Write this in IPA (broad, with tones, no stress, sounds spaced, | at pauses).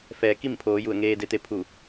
f ɛː˩˧ k i˥˨ m pʰ oː˩˧ j u˧˩ ə̯ ŋ eː˧ d e˧ t̪ e˧ pʰ u˧˩